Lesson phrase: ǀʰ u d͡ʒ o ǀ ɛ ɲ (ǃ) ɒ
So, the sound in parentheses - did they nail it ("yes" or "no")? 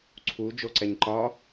yes